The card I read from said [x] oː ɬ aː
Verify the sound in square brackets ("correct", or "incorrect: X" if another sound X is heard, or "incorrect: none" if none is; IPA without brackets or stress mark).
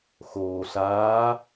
correct